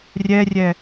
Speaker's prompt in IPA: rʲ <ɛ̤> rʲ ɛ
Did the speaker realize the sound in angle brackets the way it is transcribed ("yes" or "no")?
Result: no